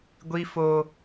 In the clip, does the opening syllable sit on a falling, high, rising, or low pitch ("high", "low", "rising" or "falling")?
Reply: high